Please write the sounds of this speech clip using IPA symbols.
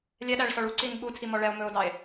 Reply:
lʲɛɗæɭsɔɭ uǀin ɓutʰimɔ ɭɛo̯mɵo̯dɑe̯

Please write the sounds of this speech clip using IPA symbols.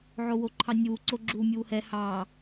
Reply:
ʕowoǃʰɑnʲuː ǀoɡ͡ǁuːmʲuːhɛ hɑː

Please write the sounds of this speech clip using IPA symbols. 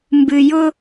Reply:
mbɨ˨jʊ˦

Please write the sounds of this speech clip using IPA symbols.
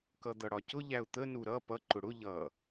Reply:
kʌd̪ʌɽɒcʊ ʎæʊ̯t̪ə nuɾʌ pʌ ǃʊɽʊ ʎʌ

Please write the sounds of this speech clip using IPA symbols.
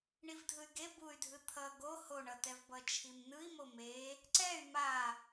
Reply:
ɳivdʱɯy̯ɡe buy̯dʱɯ t̪ʰʌ ɡo hoɳʌtɛvbʌ t͡ʃʰimnɯi̯mo me | ǀɛy̯ ma

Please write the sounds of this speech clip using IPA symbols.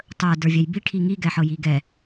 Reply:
tˤə˞də˞vʲɛj biʈʰi ŋiɡɛħɤji ɡɛ

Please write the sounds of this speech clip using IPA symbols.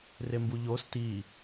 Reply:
rembuʎos ti

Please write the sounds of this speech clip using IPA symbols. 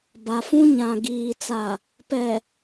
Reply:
ba˨fũ˦ ɲã˨ɡiː˨t͡sa˨ | pɛ˨

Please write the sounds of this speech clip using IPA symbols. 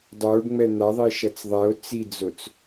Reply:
dˤoɖŋ͡mɛ n̪aðˤiʃʌt͡s ðˤɛo̯ t͡sid͡zot͡s

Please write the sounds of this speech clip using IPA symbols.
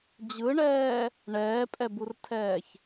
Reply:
d͡ʑɯɳɛː | ɳɛːpʼɛburtʰɛːç

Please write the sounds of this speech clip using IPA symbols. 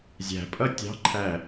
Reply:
zʲæ̤pʼʌ tʲɑ̤ǃʰæ

